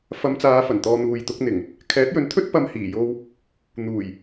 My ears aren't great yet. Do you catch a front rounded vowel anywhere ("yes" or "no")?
no